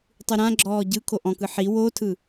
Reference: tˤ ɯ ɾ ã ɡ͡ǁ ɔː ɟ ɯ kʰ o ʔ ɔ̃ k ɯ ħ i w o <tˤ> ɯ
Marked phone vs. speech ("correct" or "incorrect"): incorrect